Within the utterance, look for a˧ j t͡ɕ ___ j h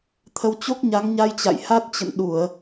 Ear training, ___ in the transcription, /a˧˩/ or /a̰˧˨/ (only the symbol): a̰˧˨